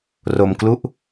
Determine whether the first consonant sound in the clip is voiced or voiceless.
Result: voiced